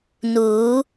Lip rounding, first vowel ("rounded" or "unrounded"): rounded